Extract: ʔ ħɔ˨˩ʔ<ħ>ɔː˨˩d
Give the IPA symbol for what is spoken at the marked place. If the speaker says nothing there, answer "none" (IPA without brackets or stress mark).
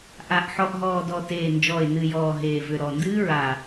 ɦ